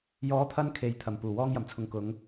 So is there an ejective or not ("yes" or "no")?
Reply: no